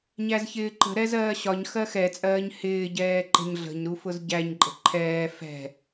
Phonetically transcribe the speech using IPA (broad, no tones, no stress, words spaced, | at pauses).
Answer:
ɲæzçɪːǃə̤ ɾɛzɜːɕɒɲ xɜxɛt͡sʼɜːɲ hɪːɟɛːǃə̤ɲ ɮə̤ɲɾufʊz ɟæɲǃʼə̤ ǃʰɛː fɛ̤